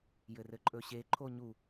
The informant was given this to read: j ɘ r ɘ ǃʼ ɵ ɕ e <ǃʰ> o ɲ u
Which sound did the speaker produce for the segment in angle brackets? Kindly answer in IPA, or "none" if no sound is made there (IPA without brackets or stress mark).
ǃʰ